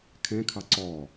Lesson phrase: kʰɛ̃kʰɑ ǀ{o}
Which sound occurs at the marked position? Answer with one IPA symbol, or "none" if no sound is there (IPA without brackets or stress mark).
ɔ